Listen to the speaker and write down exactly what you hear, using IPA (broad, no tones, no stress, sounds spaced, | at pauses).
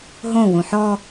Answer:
ɦ õ w ũ ħ ɔ